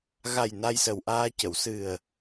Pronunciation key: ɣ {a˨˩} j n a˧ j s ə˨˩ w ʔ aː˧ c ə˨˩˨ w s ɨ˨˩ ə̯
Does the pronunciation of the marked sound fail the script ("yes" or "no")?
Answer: no